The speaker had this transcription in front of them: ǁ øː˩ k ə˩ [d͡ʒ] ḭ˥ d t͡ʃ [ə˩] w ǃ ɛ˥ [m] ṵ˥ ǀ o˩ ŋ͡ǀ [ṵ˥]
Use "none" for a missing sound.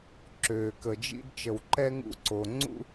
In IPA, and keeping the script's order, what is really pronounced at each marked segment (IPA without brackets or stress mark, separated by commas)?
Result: d͡ʒ, ə˩, ŋ, ṵ˥